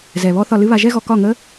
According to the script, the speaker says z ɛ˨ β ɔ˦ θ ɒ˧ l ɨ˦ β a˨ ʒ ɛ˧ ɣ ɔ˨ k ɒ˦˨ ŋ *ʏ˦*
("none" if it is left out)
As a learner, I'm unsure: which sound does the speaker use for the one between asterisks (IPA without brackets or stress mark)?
ə˦